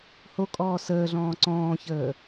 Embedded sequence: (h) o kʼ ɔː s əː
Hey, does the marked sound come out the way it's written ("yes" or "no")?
yes